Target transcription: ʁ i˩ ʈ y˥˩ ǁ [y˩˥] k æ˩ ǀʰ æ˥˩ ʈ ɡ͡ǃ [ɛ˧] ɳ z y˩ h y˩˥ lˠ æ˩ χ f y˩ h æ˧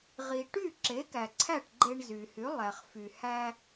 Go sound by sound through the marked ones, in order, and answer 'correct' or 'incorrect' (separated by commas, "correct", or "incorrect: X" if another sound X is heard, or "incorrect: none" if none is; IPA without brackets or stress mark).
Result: incorrect: e˩˥, incorrect: e˧